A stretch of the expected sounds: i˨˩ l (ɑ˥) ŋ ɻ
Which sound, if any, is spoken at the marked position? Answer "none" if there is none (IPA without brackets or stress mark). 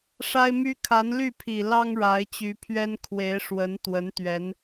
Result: ɑ˥